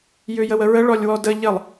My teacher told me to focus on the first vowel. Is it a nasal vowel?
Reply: no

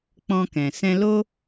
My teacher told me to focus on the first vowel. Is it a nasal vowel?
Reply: yes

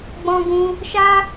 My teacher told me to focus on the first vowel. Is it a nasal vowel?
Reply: yes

